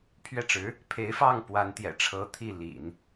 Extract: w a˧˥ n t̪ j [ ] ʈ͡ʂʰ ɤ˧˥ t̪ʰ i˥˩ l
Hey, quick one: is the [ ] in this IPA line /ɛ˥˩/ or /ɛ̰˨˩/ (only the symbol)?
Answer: ɛ̰˨˩